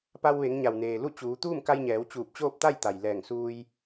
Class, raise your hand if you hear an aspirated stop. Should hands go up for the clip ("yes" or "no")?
no